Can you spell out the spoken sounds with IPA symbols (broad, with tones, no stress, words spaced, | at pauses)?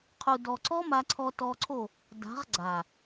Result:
qʰu˨ dɔ˨ǀɔ˦ ma˧ǀʰɔ˧tɔ˧ǀʰo˦˨ | da̤˨˦ʁ ɡ͡ǀa˨